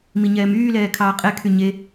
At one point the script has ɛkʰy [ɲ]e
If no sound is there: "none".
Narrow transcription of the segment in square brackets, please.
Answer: ɲ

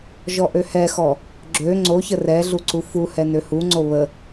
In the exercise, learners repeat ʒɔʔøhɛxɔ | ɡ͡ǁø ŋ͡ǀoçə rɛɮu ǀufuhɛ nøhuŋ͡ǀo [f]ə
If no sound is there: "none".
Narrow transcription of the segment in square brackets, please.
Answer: β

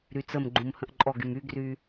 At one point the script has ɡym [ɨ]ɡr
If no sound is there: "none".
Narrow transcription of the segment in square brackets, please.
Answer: y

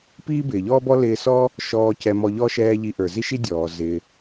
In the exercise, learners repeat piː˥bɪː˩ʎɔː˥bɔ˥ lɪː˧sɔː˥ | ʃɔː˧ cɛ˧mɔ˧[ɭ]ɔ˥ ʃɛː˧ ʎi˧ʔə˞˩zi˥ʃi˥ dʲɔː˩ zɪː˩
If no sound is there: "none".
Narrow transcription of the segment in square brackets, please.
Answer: ʎ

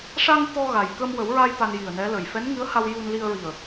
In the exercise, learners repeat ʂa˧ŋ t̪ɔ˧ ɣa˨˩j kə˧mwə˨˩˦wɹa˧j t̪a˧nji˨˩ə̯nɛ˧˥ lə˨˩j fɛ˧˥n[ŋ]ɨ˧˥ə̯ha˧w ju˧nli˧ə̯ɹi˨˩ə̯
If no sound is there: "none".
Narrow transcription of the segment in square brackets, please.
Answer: ŋ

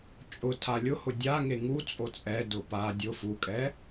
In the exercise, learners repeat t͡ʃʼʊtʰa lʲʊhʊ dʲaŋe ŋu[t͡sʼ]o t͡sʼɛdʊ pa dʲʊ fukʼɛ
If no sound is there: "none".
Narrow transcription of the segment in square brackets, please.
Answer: t͡sʼ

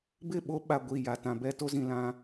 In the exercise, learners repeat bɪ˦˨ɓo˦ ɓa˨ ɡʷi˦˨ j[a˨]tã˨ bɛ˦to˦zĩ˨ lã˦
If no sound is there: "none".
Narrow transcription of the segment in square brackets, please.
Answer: a˨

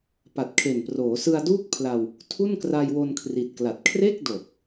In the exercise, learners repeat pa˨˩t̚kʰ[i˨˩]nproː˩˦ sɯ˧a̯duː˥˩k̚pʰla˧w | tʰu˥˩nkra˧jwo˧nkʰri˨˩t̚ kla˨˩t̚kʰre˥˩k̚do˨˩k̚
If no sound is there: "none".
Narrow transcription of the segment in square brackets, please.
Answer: e˨˩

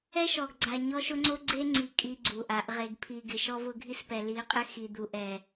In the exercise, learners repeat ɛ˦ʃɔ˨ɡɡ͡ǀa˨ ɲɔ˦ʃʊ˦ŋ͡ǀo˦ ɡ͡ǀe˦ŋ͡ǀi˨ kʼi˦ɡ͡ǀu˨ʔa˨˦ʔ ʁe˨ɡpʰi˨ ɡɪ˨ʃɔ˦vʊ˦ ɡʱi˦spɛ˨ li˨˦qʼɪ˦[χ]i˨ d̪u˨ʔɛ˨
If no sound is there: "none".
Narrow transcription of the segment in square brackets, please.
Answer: x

